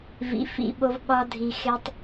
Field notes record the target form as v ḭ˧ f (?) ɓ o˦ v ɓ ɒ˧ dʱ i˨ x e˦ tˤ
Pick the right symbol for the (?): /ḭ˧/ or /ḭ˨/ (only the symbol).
ḭ˧